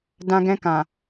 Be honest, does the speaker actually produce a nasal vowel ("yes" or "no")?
yes